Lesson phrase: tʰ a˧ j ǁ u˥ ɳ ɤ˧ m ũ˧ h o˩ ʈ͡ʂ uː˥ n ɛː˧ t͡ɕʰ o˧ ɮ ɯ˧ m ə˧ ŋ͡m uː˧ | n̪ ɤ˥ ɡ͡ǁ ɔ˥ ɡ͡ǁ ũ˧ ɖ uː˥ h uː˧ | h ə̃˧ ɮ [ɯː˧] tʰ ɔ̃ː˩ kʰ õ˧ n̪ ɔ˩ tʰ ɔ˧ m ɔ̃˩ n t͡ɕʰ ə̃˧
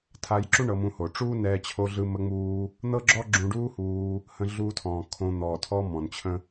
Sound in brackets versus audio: incorrect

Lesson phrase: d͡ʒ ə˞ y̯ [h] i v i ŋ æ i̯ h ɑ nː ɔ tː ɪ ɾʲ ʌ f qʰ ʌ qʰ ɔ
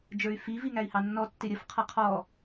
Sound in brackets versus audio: incorrect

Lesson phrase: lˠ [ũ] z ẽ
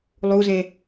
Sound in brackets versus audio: incorrect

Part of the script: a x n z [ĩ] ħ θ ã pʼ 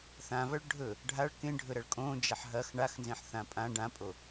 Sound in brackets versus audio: incorrect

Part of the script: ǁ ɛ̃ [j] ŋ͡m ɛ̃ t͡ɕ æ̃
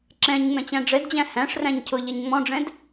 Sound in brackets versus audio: incorrect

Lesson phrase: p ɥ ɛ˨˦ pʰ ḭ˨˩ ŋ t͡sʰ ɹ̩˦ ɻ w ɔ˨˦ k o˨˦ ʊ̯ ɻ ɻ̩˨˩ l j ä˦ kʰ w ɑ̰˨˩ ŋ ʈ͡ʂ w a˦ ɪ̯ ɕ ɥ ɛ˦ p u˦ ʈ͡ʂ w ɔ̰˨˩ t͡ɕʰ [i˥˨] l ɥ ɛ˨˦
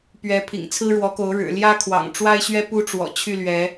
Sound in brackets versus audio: incorrect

